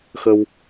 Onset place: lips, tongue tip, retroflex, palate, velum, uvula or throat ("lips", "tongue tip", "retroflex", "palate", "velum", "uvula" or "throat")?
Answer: velum